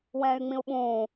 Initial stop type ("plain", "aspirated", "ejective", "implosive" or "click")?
implosive